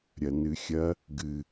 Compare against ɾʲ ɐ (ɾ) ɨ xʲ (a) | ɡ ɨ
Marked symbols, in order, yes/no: no, no

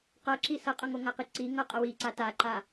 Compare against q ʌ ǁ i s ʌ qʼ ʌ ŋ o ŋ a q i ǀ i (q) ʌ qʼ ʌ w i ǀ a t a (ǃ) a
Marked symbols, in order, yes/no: no, yes

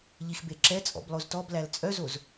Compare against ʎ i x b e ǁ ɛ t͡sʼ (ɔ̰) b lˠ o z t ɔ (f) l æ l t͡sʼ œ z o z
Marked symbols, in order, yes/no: yes, no

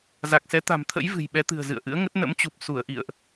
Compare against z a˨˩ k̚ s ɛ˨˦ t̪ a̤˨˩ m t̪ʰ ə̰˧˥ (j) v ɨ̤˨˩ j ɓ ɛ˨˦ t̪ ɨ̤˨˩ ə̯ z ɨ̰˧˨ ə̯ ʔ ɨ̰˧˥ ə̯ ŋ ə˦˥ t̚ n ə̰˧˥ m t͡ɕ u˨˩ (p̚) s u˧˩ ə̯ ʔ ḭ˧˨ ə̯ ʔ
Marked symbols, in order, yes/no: yes, yes

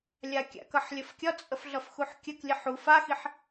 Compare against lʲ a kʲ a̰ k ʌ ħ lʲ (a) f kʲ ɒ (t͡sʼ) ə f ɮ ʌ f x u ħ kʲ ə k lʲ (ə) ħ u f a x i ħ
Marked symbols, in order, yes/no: no, yes, yes

